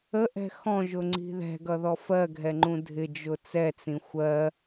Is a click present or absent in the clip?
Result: present